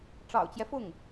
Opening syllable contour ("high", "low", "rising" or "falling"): low